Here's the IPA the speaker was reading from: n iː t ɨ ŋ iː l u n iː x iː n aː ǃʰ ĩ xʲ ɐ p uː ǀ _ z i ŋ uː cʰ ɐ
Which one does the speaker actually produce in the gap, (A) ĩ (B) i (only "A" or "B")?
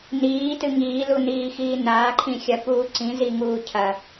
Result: A